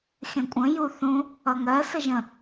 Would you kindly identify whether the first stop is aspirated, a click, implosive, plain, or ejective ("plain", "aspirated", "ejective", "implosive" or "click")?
ejective